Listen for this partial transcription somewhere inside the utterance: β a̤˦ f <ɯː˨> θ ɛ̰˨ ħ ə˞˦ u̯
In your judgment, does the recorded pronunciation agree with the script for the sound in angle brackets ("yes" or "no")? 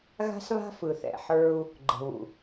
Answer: no